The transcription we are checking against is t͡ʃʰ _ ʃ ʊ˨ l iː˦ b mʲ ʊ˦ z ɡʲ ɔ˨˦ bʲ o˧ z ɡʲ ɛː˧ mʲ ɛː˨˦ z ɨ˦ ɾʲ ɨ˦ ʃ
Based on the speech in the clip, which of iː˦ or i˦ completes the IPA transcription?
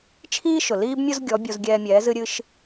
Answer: iː˦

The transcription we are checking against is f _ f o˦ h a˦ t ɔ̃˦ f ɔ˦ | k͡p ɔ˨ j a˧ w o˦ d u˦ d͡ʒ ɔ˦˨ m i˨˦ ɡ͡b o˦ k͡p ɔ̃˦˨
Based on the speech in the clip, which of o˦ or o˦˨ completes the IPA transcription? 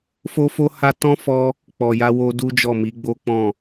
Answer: o˦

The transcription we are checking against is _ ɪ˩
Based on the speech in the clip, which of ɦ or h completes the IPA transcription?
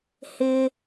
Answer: h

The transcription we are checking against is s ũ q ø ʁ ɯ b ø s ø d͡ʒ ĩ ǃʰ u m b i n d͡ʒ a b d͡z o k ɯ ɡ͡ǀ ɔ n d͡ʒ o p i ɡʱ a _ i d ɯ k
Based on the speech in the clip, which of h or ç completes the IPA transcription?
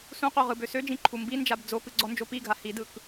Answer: h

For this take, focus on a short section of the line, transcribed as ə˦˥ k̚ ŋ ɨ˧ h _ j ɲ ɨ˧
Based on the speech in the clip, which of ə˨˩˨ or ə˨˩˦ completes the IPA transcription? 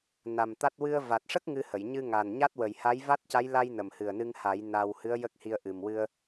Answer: ə˨˩˨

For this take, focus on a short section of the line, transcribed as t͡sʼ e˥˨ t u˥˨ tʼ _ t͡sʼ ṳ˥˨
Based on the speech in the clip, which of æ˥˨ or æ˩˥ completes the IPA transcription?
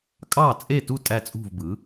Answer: æ˥˨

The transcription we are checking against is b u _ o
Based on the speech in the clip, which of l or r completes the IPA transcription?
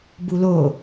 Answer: l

